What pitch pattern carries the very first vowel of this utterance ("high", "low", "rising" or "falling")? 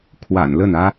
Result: low